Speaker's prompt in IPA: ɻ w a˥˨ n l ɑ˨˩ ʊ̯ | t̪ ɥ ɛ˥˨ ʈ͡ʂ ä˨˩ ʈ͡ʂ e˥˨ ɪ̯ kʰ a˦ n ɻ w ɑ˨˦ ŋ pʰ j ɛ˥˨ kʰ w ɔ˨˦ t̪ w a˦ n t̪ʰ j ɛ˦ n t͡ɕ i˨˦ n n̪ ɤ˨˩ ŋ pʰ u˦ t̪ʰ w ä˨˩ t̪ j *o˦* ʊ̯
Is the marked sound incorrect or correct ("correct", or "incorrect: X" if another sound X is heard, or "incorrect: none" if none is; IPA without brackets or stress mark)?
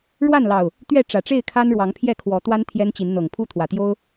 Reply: correct